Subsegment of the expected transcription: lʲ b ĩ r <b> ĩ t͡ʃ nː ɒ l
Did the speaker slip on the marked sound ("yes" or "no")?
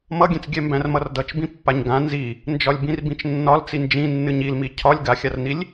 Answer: no